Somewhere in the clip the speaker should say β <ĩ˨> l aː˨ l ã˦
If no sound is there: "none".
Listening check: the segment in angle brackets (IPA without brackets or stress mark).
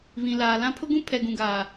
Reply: ĩ˨